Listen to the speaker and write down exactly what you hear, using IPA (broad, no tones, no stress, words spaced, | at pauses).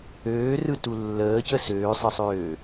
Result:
øːrɯtu lːəːcə søːsˤəsˤøː